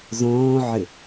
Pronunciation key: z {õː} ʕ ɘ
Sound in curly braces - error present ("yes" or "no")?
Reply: no